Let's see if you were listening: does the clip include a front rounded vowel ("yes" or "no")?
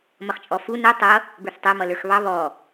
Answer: no